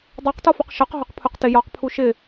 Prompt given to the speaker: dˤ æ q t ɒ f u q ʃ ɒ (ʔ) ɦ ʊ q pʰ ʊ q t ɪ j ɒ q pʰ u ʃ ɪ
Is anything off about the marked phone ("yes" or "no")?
yes